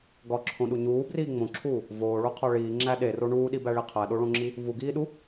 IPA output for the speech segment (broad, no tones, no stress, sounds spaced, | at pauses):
ɡ ɒ ǁʰ õ ɗ u ɲ uː b r iː ŋ͡m õ ǁʰ uː | v oː ɭ o qʰ ɒ ɭ iː ŋ͡ǁ æ ɗ e r o ɳ uː ɗ i b æ ɭ i qʰ æ ɗ o ɭ õ ŋ͡ǁ i | v u ɡ iː ɗ u